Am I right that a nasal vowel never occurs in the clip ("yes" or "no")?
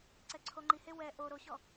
yes